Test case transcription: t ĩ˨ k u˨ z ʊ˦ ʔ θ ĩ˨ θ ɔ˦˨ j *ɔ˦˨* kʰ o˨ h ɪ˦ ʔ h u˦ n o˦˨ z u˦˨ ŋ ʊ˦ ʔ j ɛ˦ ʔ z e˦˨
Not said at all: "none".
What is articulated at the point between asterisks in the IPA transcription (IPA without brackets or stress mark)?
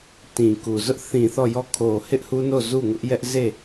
ɔ˦˨